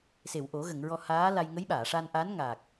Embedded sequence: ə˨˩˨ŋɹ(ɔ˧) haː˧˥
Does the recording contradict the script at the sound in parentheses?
no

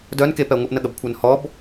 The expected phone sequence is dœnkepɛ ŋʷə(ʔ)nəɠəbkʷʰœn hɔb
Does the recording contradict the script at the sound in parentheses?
no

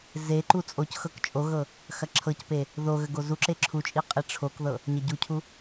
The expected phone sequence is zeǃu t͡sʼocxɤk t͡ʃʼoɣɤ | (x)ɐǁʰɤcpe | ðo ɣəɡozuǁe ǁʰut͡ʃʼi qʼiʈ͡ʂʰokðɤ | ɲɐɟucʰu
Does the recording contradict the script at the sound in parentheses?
no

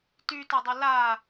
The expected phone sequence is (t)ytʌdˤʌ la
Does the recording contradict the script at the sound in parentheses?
no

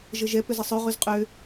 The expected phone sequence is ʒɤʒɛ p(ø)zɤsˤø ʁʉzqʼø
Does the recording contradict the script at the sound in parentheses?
no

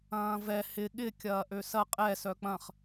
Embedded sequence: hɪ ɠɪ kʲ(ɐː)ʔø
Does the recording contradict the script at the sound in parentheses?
no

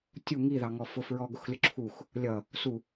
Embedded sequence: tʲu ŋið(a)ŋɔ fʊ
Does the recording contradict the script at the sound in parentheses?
yes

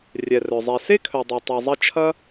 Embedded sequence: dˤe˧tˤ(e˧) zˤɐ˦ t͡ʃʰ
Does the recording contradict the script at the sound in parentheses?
yes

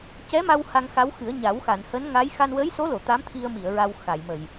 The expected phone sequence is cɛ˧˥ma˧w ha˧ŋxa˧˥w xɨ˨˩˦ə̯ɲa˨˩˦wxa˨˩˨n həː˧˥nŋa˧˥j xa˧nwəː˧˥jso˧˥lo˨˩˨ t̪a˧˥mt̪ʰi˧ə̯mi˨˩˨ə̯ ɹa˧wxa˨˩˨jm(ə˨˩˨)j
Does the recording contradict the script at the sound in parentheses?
no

